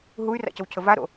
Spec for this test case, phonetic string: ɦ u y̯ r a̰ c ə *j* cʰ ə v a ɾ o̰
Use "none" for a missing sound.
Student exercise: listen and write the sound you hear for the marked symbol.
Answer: w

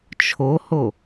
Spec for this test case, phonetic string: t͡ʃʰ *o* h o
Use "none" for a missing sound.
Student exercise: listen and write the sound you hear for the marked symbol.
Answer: o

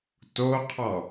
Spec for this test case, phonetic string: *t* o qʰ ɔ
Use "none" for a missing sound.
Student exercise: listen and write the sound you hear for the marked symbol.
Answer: t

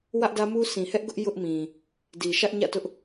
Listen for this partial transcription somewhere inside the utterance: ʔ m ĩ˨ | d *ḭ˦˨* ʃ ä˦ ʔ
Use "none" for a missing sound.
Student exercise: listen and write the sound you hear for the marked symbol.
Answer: i˨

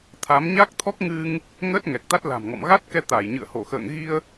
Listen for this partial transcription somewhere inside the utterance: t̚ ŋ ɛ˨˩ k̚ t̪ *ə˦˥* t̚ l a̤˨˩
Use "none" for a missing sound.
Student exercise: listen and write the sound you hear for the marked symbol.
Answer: a˦˥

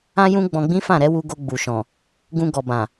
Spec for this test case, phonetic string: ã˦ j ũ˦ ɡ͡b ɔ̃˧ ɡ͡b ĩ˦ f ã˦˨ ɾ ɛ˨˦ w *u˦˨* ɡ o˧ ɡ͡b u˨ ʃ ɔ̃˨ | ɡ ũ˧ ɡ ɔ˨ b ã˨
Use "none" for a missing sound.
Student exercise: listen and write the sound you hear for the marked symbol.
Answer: u˧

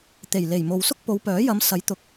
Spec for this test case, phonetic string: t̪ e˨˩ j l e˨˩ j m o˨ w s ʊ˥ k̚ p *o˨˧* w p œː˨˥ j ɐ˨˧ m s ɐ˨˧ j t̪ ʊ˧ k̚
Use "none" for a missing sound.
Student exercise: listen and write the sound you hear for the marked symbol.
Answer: o˨˧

